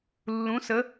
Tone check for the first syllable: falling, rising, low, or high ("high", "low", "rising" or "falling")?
rising